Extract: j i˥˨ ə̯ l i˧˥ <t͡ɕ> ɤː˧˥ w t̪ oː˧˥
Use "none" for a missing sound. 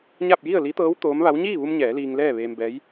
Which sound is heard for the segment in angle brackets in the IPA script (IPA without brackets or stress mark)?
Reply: t̪